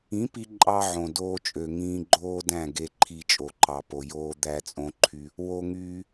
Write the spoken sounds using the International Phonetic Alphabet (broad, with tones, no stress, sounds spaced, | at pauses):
ĩ˨˦ p i˧ ǃʼ ɑ˧ ʕ õ˨ d oː˧ t͡ʃʼ ø˨ ŋ ĩː˧ ɡ͡ǃ oː˦ d æ̃˦˨ ɡ e˧ ǃʰ i˨ t͡ʃʼ o˨ ǃ ɑ˨ p o˨ j oː˧ d̪ æ˧ t͡sʼ õ˧ ǃʰ y˧ | w o˦ ŋ yː˦